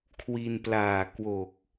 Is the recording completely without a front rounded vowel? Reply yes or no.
yes